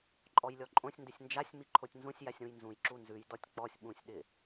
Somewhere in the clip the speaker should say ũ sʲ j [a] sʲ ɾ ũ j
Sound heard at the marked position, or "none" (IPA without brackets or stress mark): a